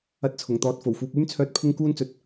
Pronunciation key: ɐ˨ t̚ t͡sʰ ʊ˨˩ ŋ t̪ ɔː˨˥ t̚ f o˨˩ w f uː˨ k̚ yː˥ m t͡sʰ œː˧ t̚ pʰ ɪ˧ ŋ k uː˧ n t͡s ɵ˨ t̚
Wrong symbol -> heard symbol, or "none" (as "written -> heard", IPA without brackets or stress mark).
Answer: ɐ˨ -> ɐ˧